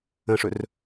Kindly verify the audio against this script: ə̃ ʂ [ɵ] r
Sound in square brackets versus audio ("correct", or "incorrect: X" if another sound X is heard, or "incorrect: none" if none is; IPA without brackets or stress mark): correct